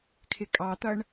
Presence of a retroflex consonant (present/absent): present